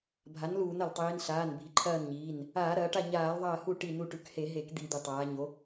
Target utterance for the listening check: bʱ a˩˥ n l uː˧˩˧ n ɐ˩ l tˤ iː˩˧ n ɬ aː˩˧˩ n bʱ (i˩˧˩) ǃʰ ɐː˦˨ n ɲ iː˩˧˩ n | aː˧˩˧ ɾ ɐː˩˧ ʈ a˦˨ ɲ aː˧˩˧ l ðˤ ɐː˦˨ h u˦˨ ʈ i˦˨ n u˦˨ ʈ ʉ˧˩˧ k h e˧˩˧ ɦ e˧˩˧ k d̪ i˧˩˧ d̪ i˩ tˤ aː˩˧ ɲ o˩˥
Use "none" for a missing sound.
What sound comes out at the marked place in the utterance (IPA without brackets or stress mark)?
i˩˥